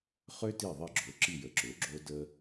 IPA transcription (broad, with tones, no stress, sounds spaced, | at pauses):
χ ø˥ t i˦˨ ðˤ i˦˨ ɡ͡ǁ o˩˥ ǁ i˦˨ j ə˩˥ ǁ ø˩˥ ɡ͡ǁ o˥ d ə˥